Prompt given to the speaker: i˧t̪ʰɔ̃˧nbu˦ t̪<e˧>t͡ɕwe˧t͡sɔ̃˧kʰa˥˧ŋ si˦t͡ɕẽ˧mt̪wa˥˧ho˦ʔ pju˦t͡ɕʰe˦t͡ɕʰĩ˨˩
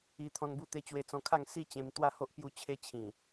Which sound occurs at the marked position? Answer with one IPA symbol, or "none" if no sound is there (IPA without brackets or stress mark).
e˧